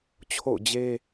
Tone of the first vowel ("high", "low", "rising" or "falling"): falling